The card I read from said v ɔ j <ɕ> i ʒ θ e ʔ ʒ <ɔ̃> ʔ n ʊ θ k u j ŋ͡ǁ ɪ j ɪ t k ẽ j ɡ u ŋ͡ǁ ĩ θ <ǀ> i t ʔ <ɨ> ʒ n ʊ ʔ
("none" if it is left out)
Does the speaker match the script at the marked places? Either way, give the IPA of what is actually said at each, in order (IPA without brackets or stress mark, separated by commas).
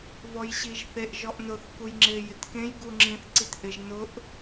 ɕ, ɔ, ǀ, ɪ